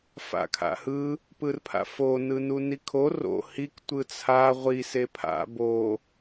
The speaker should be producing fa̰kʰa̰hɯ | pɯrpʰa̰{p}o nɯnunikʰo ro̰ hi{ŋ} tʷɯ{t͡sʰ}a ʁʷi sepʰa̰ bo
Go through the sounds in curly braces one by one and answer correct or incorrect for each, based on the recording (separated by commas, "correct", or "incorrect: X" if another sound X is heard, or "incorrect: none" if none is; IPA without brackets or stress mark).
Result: incorrect: f, incorrect: k, correct